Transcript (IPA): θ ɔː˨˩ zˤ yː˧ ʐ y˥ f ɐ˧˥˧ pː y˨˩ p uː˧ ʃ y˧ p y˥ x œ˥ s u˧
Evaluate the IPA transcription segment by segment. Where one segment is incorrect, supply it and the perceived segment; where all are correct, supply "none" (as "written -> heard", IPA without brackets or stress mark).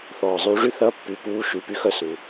f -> θ